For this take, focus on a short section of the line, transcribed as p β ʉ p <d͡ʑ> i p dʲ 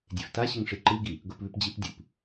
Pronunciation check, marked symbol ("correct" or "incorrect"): correct